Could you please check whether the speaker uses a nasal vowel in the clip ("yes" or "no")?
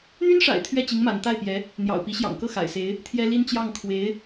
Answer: no